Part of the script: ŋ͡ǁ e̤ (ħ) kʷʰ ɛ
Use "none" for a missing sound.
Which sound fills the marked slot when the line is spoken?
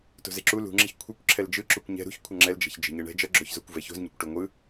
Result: ç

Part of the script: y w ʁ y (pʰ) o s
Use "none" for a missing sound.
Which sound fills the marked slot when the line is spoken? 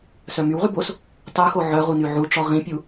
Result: b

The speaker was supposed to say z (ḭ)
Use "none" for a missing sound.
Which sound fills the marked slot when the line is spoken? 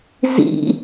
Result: ḭ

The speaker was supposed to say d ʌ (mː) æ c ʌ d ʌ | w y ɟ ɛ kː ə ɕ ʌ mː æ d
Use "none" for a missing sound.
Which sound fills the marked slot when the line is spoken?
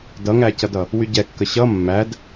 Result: ŋ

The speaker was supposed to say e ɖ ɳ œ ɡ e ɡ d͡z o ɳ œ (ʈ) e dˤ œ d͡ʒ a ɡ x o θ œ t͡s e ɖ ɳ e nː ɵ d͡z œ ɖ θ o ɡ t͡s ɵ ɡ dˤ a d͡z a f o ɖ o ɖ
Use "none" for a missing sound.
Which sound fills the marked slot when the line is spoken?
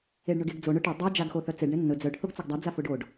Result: ʈ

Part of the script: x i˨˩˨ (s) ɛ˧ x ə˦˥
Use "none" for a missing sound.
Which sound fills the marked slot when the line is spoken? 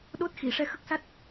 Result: ʂ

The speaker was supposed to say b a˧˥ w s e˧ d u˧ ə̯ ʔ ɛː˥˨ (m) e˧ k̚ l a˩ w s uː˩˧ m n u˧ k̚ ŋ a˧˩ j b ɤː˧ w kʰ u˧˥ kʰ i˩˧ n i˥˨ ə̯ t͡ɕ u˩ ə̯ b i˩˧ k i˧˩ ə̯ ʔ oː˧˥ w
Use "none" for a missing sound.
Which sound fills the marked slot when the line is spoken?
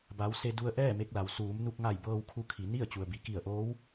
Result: m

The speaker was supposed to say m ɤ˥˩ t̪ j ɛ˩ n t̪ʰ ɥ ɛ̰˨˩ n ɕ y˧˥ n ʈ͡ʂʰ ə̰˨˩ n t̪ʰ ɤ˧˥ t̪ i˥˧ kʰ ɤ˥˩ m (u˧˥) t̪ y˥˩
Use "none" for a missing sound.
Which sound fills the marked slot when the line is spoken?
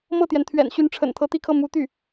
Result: u˧˥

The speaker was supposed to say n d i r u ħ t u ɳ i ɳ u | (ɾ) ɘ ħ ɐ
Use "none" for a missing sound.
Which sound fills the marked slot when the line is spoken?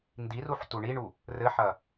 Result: r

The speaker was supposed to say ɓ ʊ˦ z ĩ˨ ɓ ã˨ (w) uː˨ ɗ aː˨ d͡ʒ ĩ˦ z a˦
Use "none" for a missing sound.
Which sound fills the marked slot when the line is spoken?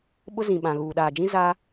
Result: ɣ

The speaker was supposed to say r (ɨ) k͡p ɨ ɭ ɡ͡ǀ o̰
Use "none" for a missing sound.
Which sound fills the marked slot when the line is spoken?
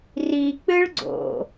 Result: i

